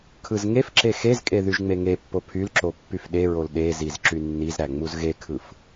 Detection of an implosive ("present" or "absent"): present